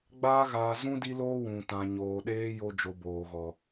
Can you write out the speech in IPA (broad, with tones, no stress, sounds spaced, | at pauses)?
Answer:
ɡ͡b aː˦ ɣ aː˧ z ũ˦ d i˦ l oː˦ w ũ˨ t ã˨ ɲ oː˨ ɗ eː˧ j o˦ d͡ʒ o˧ b oː˨ ɣ ɔ˨